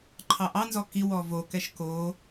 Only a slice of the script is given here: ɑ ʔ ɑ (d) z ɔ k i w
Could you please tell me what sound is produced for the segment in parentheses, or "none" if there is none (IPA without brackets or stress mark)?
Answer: n